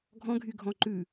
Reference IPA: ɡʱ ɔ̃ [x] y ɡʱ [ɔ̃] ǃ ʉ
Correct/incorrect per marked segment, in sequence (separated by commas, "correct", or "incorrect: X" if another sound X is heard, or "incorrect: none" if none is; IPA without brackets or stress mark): incorrect: ɡʱ, correct